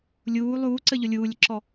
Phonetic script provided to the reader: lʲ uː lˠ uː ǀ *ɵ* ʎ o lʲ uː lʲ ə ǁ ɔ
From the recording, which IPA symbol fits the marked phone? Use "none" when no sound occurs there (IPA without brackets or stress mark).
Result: ə